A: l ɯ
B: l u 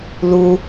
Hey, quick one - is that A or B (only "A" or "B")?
B